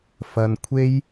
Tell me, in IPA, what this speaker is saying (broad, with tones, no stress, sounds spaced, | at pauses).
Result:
f ɐ˧ n kʷʰ e˥ j